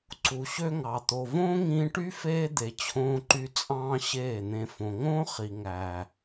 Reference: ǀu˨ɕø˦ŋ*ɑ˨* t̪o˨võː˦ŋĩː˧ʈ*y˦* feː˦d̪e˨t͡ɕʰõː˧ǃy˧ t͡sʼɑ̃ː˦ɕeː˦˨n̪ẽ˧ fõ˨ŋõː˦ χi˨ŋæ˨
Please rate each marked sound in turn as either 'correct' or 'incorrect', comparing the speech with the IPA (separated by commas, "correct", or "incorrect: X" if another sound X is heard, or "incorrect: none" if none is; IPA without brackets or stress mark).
correct, correct